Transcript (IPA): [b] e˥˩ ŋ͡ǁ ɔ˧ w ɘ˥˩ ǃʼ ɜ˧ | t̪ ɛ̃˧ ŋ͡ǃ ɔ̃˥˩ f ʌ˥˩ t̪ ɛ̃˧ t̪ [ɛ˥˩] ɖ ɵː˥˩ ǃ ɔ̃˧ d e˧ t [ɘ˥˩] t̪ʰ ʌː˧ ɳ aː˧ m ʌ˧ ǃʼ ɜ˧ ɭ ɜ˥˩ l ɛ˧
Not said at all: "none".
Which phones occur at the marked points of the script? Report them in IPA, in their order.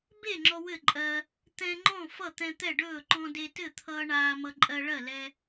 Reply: b, ɛ˥˩, ɘ˥˩

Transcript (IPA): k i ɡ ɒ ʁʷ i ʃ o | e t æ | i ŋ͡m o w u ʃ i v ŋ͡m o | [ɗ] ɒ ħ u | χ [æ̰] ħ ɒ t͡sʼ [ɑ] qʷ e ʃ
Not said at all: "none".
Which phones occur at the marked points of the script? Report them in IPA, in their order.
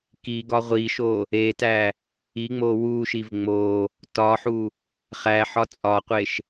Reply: t, æ, ɒ

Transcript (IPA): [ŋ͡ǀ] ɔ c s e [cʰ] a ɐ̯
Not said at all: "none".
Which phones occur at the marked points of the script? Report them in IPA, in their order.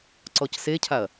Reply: ǀ, cʰ

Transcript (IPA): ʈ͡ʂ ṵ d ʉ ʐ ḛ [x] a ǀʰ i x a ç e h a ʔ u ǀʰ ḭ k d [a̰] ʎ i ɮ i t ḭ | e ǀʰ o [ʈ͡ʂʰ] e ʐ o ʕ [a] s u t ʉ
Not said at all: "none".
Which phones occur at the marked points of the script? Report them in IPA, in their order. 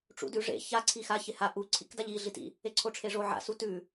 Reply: ç, a, ʈ͡ʂʰ, a̰

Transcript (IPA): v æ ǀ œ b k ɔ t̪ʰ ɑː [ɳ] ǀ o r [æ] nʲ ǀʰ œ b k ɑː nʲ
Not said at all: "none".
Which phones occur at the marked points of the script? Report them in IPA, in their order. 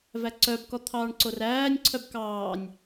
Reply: ɳ, æː

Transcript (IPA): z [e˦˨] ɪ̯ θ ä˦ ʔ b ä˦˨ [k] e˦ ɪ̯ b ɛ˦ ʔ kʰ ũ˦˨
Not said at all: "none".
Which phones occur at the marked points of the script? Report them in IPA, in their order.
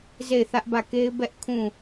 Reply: e˦˨, k

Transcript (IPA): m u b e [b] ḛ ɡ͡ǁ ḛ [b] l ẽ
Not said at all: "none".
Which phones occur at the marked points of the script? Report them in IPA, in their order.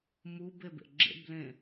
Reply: b, b

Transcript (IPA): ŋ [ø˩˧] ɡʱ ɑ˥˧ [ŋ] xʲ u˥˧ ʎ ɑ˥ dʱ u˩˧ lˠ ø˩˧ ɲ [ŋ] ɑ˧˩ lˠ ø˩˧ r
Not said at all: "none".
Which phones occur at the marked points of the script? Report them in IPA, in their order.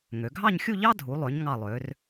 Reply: ø˩˧, ɲ, ŋ

